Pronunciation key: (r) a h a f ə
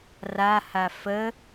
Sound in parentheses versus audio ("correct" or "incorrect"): correct